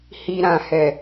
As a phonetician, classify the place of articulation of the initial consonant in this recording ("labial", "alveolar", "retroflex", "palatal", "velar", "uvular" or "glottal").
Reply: glottal